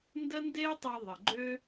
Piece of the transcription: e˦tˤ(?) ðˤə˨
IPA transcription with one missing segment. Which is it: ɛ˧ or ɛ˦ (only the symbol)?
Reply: ɛ˧